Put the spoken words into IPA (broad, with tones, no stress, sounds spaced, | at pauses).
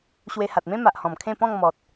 ɕ w e˧ h a˨ t̚ m ẽ˦ m a˨ ʔ h ɔ̃˨˩ m kʰ ẽ˥˧ p ɔ̃˥˧ ŋ m ɔ˨ t̚